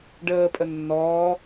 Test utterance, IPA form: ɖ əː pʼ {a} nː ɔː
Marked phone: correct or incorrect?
incorrect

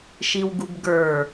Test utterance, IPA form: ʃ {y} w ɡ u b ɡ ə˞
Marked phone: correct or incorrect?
incorrect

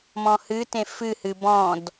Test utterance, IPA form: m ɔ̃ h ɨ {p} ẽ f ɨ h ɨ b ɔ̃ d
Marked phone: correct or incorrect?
incorrect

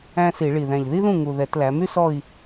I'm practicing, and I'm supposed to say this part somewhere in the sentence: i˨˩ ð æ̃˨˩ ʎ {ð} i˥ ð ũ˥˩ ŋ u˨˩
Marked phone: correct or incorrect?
correct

